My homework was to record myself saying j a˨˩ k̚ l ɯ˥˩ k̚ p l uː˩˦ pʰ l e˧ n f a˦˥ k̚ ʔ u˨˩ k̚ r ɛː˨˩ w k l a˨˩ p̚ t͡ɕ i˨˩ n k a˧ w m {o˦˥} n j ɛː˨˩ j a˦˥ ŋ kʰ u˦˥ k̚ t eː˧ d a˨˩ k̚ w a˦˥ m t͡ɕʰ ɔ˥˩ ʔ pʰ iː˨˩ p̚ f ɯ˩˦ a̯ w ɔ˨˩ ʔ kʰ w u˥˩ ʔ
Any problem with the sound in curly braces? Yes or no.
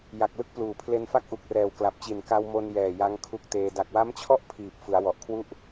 yes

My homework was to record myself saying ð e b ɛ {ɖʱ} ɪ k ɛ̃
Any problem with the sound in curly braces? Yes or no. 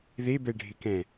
no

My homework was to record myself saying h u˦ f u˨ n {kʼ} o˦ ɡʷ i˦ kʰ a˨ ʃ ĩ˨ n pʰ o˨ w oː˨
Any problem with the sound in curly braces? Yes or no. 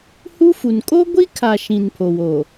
no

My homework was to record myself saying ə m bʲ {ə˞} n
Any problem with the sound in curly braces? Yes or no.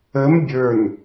no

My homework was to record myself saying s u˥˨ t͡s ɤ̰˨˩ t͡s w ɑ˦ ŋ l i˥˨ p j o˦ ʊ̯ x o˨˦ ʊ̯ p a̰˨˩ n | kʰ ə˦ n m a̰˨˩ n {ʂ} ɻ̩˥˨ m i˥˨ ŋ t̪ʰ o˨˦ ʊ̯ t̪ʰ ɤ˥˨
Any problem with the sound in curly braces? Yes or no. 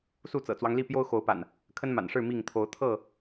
no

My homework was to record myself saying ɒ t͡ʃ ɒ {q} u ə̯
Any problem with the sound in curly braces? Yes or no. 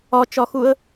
yes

